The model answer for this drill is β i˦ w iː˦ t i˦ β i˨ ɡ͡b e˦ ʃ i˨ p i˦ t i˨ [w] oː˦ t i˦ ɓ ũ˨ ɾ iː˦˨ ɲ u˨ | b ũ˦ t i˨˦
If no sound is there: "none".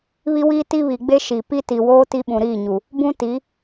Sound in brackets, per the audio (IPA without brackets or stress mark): w